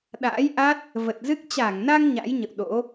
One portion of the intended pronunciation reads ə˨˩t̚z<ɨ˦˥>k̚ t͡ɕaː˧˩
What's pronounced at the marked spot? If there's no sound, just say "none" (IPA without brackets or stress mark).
ɨ˦˥